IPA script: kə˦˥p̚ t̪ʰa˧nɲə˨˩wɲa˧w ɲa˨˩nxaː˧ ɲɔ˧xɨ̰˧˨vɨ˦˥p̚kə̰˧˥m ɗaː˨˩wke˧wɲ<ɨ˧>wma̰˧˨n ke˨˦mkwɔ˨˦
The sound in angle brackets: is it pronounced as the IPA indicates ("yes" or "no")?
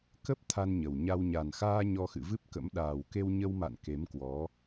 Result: no